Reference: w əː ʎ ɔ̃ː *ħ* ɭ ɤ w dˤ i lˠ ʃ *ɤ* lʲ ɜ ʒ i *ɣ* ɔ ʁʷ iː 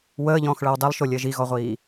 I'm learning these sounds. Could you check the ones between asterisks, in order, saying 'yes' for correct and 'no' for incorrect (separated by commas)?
no, no, yes